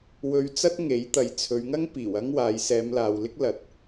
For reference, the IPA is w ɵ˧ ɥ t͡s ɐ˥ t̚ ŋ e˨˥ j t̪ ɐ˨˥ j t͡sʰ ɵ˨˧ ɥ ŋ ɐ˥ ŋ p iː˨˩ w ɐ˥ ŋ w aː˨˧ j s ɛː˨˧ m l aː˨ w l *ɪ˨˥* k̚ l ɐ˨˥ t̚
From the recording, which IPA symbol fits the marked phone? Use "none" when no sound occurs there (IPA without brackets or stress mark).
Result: ɪ˥